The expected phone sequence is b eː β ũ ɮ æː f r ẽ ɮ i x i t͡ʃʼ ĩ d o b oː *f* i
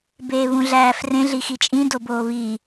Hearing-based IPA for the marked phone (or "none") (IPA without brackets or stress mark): β